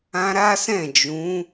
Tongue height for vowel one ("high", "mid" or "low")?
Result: low